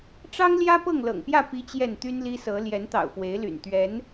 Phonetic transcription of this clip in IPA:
ʈ͡ʂ ɑ˦ ŋ l j ä˦ p ɤ˥˨ ŋ l ɤ̰˨˩ ŋ p j ä˥˨ p i˨˦ t͡ɕ j ɛ˥˨ n t̪ y˦ n l i˦ s ɤ˨˦ l j ɛ˨˦ n t̪ ɑ̰˨˩ ʊ̯ f w e˨˦ ɪ̯ l y̰˨˩ n t̪ ɥ ɛ˨˦ n

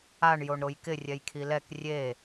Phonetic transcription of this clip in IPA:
a ɳ j o ɳ ɾ o j k ɪ rʲ ɛ j kʰ i l ɛ k rʲ e

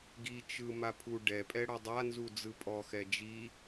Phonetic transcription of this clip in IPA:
ɡ i t͡ʃ ɯ m a pʰ u ɖ ɛ pʼ ɛ ɽ ɔ dˤ a n z u d͡z ɯ pʼ ɔ x ɛ d͡ʒ i

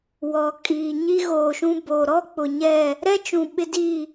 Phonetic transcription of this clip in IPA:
w ɔ˨ kʼ iː˨ ɲ i˦ ɣ oː˨ ʃ ũ˦ b oː˨ ɾ ɔ˦ k͡p ʊ˨ ɲ ɛ˦˨ | ɾ ɛ˦ t͡ʃ ũ˨ ɓ ɪ˦ d i˦˨

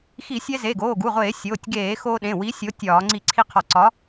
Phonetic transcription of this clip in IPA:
x i˧˩˧ sʲ ɛ˧ z e˩˧˩ ɡ oː˩˧˩ ɡ u˩˧˩ ʁʷ eː˧˩˧ sʲ oː˩˧˩ tʲ ɡ eː˧˩˧ x o˧ ɗ ẽ˩˧˩ w i˨˥ sʲ o˨˥ tʲ ɒː˧˩˧ ŋ͡ǀ i˧˩˧ ǀʰ i˧ qʰ ɒ˧˩˧ ǀ ɒ˨˥

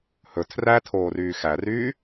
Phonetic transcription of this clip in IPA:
h ɵ tʰ r æ tʰ oː r yː x æ r yː

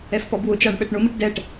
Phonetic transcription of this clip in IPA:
ɛ f p ɔ b w ʊ t͡ʃ a ɳ ɓ ɛ ʈ ɳ ʊ m i ʈ d ɛ ʈ

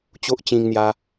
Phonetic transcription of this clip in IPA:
t͡ɕ o˦ ʔ t͡ɕ ĩ˧ ŋ n̪ j a˧

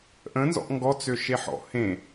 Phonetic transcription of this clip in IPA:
ʔ ə̃ n z ɔ̰ ʔ ŋ ɡ ɔ t͡s ø ʃ e ħ ɔ̰ h ẽ

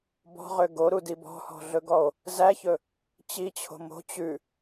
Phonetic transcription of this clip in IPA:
b ɔ̤ ʁ ø ɡ o ɾ u d i b ɔ̤ h ɔ̤ ɮ ɵ ɡ ɔ o̯ | z æ ç ɵ | t͡ɕ i t͡ɕʰ o̤ m o̤ t͡ɕ ʉ

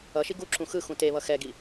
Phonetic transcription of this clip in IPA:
ʌ ʃ i ɡ u ǁ ũ x ɯ x ũ t e β ʌ x ɛ ɡ i

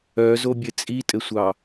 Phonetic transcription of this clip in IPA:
œ z o bʲ ɘ t͡sʼ i tʼ ɘ sʷ ɑ

